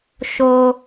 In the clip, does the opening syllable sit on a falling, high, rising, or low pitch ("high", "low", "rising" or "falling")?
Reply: low